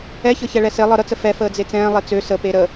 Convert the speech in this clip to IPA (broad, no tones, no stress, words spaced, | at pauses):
ɛçɤ çɛɭɛse lˠɤɾət͡sə fɛ fəːd͡zet͡sɛ̃ː lˠet͡sø sə peɾə